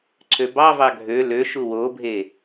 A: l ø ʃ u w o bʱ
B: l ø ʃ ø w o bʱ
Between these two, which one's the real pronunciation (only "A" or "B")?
A